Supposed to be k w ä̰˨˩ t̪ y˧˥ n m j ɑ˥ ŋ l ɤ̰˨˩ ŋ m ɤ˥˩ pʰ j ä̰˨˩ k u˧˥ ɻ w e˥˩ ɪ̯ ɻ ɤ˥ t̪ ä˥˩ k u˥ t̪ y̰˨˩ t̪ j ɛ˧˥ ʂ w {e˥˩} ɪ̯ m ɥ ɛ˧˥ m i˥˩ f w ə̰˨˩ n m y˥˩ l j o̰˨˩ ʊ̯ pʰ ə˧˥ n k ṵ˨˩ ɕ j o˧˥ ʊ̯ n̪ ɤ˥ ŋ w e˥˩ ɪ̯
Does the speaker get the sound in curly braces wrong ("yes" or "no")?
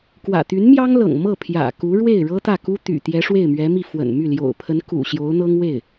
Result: no